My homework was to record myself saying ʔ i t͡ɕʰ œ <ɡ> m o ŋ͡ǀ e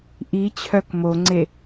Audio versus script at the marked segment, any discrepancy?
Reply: yes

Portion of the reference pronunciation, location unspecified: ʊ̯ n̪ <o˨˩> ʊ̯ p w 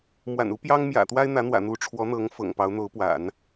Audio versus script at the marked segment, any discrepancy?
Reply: yes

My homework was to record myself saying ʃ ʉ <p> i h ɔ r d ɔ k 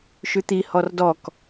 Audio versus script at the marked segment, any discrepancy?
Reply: yes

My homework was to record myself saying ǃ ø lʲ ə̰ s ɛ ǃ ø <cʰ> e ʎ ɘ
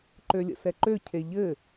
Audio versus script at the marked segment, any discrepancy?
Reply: no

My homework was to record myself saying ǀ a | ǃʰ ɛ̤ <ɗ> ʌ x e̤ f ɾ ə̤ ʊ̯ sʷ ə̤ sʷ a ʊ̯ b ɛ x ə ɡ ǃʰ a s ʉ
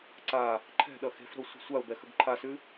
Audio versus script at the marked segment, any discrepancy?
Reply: no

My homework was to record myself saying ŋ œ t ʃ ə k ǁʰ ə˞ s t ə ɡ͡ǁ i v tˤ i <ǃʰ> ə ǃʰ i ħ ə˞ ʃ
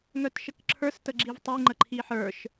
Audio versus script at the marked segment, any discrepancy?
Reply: yes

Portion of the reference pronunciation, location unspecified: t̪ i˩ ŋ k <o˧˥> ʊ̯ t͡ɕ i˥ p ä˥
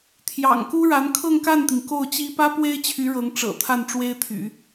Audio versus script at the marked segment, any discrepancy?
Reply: yes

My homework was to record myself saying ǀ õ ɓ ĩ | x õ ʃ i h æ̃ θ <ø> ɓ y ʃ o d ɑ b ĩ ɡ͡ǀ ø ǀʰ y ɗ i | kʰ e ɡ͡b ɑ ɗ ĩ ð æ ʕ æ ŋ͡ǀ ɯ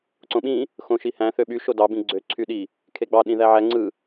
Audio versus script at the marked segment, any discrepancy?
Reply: no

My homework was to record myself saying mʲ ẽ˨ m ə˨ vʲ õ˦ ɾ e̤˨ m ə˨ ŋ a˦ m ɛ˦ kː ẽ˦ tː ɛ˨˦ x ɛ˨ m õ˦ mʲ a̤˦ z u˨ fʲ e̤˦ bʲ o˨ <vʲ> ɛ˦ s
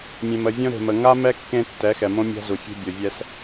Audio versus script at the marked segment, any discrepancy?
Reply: no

